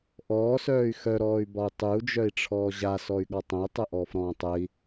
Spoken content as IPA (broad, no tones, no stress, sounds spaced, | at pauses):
ʔ ɔː s œː y̯ x œ ɾ ɔː y̯ b ɒ u̯ tˤ ʉ u̯ d͡ʒ œ i̯ ʈ͡ʂʰ ɔː ʑ a s ɔ y̯ ɠ ɒ tˤ ə̃ y̯ tˤ ə ʔ ɔː f ɾ ɔ̃ː tˤ ə i̯